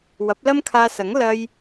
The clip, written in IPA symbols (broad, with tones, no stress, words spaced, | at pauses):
wɐ˨˥p̚lɐ˥mkʰaː˧sɐ˨˥ŋ lɐ˧j